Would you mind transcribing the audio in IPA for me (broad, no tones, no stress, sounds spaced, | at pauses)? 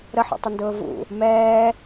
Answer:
ɾ ə ħ ṵ tˤ ɪ n d ʊː v ṵ | m ɛː